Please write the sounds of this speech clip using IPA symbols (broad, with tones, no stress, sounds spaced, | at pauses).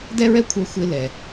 d ɛ˥ ɹ ɛ˥ kʷʰ ə˞˧ xʷ ɪ˧ l ɛ˩